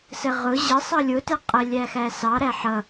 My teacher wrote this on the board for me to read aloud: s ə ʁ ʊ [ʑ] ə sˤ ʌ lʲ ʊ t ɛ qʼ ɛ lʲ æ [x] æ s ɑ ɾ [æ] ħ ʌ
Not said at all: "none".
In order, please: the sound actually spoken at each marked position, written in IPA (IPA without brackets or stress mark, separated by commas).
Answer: ʑ, x, æ